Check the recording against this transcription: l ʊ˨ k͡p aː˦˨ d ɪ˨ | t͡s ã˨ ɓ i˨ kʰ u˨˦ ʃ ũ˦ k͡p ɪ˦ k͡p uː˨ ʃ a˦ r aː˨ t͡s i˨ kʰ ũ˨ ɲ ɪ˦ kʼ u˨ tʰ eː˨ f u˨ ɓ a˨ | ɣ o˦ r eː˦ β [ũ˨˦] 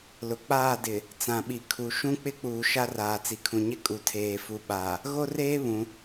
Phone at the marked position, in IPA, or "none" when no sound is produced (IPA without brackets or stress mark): ũ˨˦